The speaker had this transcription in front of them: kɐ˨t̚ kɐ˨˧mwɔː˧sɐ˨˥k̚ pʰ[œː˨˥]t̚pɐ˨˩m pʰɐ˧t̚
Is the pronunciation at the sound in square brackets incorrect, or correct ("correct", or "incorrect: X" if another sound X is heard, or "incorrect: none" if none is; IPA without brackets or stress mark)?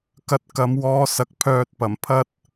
incorrect: œː˨